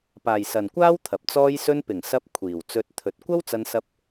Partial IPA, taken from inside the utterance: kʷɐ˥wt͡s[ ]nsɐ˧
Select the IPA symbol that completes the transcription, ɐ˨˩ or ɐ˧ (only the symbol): ɐ˧